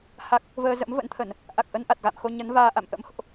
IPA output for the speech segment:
ha˦˥k̚ | vəː˧zə̰˧˥m və̰˧˥nt̪ʰə˧˩˨n | ʔa˨˩k̚ʔə˧n ʔa˨˩t̚ɣa̰˧˨mxo˧ ɲə˨˦n vaː˧ ʔa̰˧˨mʔə̰˧˥mho̰˧˨ʔ

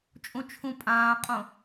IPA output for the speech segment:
t͡ʃʼũt͡ʃʰũpʼãːqʼõ

